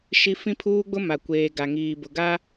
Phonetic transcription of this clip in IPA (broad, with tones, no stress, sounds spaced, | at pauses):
ʃ i˦ f ĩ˦ pʰ uː˦ ɡ͡b ʊ˦ m a˨ kʷ eː˨ ɡ a˨ ŋ iː˨ b ʊ˨ ɡ a˦